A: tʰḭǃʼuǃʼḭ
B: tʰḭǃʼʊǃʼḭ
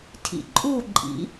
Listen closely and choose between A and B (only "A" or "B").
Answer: A